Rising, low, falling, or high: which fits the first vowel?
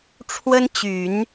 high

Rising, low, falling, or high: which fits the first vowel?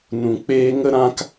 low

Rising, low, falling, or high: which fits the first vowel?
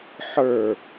falling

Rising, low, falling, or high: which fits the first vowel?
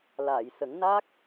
low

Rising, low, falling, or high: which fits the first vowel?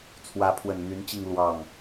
rising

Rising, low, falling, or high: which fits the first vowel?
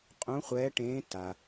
rising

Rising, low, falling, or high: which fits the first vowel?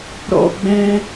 high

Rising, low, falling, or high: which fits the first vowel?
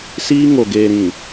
high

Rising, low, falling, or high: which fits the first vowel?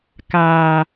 high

